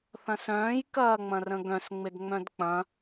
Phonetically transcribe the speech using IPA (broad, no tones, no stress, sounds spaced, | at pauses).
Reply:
θ ɐ̃ s œ̃ː j k ɐː ŋ͡m ɐ̃ r ə̃ ɡ œ̃ s ŋ͡m ɪ d ŋ͡m œ̃ d k͡p ɐ̃